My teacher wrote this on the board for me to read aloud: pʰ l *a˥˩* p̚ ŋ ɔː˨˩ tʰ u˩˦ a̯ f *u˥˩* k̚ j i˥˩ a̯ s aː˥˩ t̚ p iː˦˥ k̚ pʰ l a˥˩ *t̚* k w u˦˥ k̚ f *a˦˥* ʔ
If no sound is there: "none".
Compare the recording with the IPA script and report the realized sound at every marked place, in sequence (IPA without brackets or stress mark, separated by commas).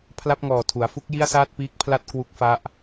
a˥˩, u˥˩, t̚, a˦˥